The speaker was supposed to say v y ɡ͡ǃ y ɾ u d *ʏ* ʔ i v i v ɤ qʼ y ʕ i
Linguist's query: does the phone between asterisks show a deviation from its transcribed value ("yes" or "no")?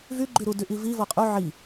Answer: yes